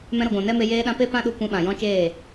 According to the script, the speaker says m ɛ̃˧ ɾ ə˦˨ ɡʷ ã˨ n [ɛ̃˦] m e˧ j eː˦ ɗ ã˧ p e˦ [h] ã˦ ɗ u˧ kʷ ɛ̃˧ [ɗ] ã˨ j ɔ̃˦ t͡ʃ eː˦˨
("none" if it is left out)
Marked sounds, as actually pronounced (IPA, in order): ɛ˦, p, ɓ

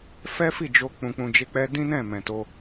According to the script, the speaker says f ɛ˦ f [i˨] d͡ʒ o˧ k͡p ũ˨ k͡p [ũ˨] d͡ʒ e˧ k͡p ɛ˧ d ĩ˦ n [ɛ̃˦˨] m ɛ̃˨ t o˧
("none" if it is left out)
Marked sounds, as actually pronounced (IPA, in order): i˦˨, ũ˨, ɛ̃˦˨

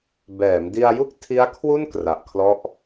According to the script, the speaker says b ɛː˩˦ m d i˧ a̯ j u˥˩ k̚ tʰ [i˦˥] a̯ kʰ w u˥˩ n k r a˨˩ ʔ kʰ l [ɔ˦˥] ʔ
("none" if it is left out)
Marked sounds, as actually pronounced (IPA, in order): i˦˥, ɔ˦˥

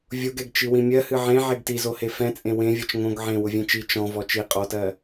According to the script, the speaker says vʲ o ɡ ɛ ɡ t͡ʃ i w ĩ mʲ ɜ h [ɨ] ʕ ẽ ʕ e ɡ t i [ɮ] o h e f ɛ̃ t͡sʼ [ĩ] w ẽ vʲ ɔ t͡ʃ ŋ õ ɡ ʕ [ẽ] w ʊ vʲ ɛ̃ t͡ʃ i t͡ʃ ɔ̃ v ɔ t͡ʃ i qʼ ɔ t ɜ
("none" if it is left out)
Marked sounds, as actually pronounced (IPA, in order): ɨ, z, ẽ, ẽ

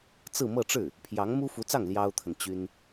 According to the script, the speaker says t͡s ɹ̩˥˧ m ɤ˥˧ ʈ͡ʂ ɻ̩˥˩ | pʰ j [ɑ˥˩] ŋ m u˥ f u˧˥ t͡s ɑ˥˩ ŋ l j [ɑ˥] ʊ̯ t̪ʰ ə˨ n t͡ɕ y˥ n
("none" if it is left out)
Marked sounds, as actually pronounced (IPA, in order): ɑ˧˥, ɑ˥

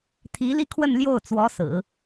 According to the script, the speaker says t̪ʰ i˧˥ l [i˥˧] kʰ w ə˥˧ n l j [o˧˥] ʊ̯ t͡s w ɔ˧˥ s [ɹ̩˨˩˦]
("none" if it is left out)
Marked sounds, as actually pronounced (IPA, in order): i˥˧, o˥˩, ɹ̩˨˩˦

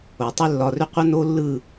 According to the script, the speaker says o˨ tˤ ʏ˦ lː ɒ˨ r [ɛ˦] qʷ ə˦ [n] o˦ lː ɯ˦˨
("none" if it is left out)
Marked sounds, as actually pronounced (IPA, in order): ʏ˦, n

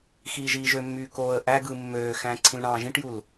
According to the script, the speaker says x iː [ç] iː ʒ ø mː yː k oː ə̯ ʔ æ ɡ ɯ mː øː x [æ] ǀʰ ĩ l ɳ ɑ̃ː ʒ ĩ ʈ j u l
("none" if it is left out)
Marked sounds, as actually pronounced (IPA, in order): ʒ, æ̃

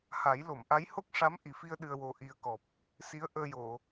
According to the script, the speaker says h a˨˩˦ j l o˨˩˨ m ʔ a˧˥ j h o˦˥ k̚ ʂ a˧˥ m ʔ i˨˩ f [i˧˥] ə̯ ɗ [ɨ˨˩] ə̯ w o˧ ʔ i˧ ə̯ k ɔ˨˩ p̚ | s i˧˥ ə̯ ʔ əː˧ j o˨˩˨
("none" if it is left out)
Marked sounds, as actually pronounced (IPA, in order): i˧, ɨ˧

